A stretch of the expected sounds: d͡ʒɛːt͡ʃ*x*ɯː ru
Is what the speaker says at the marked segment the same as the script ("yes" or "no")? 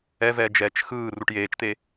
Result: yes